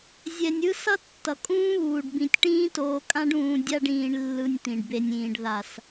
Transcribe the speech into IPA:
zʲ ɛ˧ nʲ ɯ˦ s ʌ˦ tː ʌ˨ kʼ ũː˦ β uː˨ ɖ b ĩ˨ tʲ ʈ ĩː˦ t oː˧ kʼ ã˦ ɖ ũː˧ dʲ a˧ ɖ ĩː˨ ɳ lː ɯ˧ nʲ t̪ ĩ˨ ɖ b e˧ nʲ ĩː˨ ɖ ð a˨ s

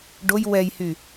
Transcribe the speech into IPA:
ɖ o j w ɛ j h y

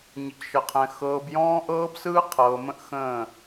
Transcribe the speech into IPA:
ɲ ə˨ c ʃ ə˨ qʰ ɛ̃˨ x ɤː˨ b j ɔ̃ː˦ ʔ ɤː˦ b s ɯː˦ qʰ ɤː˨ m ə̃˦ ʔ x ə̃ː˦˨

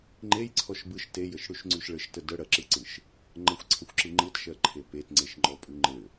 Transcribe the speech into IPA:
ŋ͡ǃ e j ǀʰ ɔ ʃ b ɯ ʃ t e j ə ʃ ɽ ʉ ʃ ŋ͡ǀ ʉ ʃ ɭ ɘ ʃ t ə d ə ɽ ɜ ǁ ɯ ǀ ɯ ʃ | ŋ͡ǃ ə xʷ ǀʰ ə xʷ ǁ ɯ ŋ͡ǃ ɯ t ʃ ɜ ǃʰ e p e t ŋ͡ǀ e ʃ ŋ͡ǃ ɔ pʼ ʉ ŋ͡ǃ ɘ

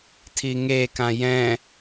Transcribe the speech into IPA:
tʰ i ŋ e k ã j ɛ̃

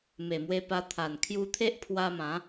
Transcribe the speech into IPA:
m e˨˩ m w e˧ p a˧ t̪ʰ a˨˩ n kʰ j u˧ t̪ʰ e˦ ʔ pʰ w a˧ m ã˨˦

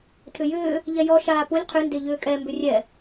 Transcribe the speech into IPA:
tʰ ʏ j ʏː | ʎ ɛ j ɔ ʃ aː p u lʲ qʰ ʏ n d e ʎ ʏː kʼ ɛ m b ʏ rʲ ɛ

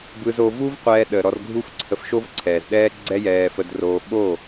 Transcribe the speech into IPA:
b ɯ˧ z o˧ v u˦ v qʷ ɛː˧ ɗ ə˨ ɾ ɔ˧ r ɡʱ u˦ f ǀʰ ə˧ f ʃ o˦ v ǀʰ ɛː˨ z ɗ ɛː˦ ɡ͡ǀ ɛ˦ j ɛː˧ f ə˧ d r oː˧ ɓ o˦˨

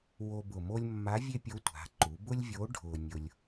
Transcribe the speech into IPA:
w o˧ b ʊ˨˩ m o˥ lʲ mː a˧˥ vʲ e˥ pʲ o˧˥ tʷ a̤˩˧ ǃ u˩˧ b ʊ˥ lʲ vʲ o˧˥ ɖʱ ʊː˧ nʲ ʊ˧ lʲ

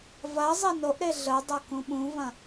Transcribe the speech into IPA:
v ɐ zˤ e n o ʔ ɾ e ɮ ə dˤ ɐ k ũ ɓ ũ v ɐ̃

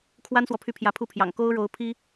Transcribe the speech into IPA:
kʰ w a˥ n s w ɔ˨ pʰ y˥˩ pʰ j ä˧˥ pʰ u˥˩ pʰ j ɑ̰˨˩ ŋ k o˥ ʊ̯ ɻ o˧˥ ʊ̯ pʰ i˥

